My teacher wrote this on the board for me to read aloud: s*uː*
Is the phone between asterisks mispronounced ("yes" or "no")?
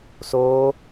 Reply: yes